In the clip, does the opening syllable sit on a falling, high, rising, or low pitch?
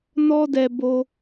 high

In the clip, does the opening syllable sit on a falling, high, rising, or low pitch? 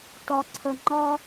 low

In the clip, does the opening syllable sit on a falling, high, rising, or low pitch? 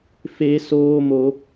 high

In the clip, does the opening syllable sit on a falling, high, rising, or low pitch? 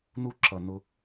high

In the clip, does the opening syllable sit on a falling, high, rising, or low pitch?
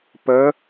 rising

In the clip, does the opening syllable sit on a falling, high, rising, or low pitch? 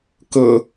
low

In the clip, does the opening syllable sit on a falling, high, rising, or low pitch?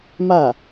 falling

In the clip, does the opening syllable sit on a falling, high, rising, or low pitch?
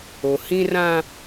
low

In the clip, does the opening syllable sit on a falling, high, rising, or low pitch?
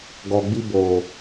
low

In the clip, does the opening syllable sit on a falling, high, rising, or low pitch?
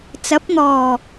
rising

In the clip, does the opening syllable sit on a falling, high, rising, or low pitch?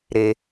high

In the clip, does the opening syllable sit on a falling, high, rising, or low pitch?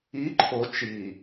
rising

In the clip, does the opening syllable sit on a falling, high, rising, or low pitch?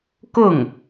falling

